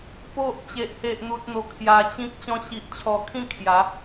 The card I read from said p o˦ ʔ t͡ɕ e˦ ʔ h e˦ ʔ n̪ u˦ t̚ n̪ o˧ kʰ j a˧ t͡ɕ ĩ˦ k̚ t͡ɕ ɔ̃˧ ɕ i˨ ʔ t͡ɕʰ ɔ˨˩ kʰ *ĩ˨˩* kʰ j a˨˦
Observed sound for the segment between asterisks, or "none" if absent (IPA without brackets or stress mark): ĩ˥˧